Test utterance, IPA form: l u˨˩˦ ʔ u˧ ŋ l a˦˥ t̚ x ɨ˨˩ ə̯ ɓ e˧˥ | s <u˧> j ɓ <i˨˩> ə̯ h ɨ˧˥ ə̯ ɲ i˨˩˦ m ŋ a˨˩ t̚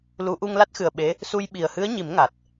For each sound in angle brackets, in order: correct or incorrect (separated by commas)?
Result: correct, correct